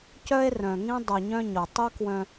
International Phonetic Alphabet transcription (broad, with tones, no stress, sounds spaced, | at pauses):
c œ˦ e̯ r œ̃˨ ŋ ĩ˦ dˤ u˨ ɲ œ̃˦ ɲ o˨ tˤ u˦ k w œ̃˦